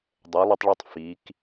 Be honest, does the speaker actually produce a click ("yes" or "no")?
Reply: no